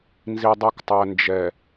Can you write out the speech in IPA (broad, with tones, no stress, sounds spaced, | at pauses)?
n z i˨ dˤ i˨ k tˤ æ˨ n d͡ʒ ɛ˨